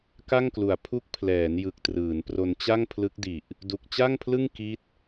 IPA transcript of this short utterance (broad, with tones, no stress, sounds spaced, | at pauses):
k a˥˩ ŋ k l u˨˩ a̯ pʰ u˦˥ k̚ pʰ l ɛː˩˦ n j ɯ˨˩ k̚ t r ɯː˩˦ n p r o˧ n t͡ɕ a˥˩ ŋ pʰ l ɯ˦˥ k̚ d i˨˩ ʔ | d u˨˩ k̚ t͡ɕ a˥˩ ŋ pʰ l ɯ˥˩ ŋ k i˦˥ t̚